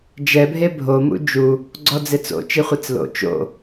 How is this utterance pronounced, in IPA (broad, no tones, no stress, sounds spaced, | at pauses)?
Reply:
d͡ʒ ɛ bʱ e bʱ o m ṵ d͡ʒ u | ɡ͡ǀ ɔ d͡z ɪ t͡s o̰ t͡ʃ i χʷ i t͡s l o̰ t͡ʃ o̰